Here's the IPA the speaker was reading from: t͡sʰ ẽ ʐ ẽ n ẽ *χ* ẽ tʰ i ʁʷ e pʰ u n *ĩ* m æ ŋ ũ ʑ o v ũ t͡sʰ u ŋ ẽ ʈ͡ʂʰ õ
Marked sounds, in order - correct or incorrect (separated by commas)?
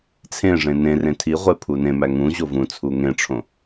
incorrect, incorrect